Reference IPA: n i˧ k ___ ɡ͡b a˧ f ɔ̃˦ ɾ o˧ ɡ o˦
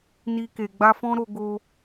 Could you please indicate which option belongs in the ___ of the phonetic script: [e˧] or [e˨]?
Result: e˨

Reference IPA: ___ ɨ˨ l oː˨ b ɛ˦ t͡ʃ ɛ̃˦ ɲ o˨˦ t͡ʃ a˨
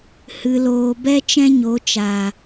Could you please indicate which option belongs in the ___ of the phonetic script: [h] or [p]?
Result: h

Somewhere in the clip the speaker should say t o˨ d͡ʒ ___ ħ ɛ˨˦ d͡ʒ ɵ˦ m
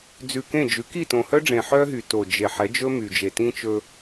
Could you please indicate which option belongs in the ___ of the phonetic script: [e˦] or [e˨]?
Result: e˨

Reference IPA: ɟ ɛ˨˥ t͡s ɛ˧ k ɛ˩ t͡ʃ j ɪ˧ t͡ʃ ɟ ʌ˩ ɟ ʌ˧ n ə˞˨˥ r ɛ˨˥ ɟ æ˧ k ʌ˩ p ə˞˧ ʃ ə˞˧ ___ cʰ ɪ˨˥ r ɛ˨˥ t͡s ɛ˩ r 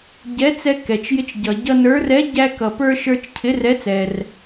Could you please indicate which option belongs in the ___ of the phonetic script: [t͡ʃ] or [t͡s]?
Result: t͡ʃ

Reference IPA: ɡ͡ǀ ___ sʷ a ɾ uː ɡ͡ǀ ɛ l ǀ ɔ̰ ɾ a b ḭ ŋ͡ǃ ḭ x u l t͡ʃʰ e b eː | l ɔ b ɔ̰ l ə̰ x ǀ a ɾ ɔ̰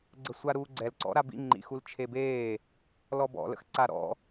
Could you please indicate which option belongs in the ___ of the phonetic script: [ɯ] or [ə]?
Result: ə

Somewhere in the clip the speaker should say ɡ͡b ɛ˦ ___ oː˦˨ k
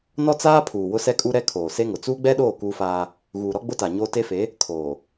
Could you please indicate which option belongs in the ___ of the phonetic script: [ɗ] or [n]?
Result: ɗ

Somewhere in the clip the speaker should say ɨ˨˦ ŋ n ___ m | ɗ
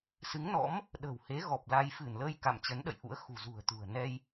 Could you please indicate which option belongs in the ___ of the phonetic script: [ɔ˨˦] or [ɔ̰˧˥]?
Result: ɔ̰˧˥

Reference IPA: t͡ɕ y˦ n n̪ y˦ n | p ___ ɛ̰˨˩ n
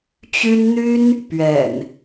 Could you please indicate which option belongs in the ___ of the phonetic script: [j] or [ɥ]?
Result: ɥ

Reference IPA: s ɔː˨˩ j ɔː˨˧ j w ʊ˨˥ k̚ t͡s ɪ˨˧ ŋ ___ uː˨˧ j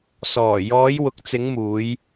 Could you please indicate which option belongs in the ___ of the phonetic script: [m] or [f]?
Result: m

